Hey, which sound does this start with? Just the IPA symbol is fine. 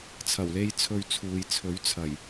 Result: t͡sʰ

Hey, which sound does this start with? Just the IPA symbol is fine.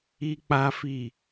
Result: i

